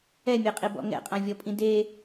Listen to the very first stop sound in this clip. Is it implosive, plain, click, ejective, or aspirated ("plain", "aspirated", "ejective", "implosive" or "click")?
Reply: ejective